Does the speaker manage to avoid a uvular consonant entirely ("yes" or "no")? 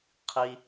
no